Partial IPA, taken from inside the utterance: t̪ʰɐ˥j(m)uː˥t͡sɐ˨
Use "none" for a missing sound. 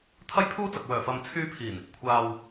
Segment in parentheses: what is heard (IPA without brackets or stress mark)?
pʰ